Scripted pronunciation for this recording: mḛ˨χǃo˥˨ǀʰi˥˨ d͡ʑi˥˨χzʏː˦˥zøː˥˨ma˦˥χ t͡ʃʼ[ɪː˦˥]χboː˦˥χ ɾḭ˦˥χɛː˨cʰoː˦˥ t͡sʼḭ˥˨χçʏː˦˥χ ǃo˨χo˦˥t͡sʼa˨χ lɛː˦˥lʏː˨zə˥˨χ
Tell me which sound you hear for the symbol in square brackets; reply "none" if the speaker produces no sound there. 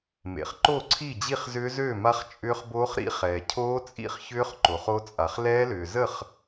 ʏː˦˥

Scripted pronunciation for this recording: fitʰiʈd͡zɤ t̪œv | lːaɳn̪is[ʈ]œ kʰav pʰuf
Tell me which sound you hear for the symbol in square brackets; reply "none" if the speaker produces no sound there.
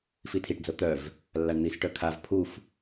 ʈ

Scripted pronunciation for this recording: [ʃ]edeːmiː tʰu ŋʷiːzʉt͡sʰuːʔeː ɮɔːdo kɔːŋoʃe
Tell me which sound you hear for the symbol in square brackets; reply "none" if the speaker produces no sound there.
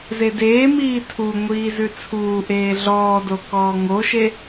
z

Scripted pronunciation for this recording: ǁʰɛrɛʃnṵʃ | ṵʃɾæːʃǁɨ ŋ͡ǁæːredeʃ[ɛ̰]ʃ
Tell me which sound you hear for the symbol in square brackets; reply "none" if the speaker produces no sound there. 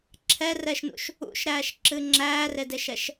ɛ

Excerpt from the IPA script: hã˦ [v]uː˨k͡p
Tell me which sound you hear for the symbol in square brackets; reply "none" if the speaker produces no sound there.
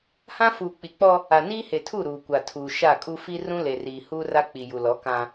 f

